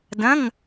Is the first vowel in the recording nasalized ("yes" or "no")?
yes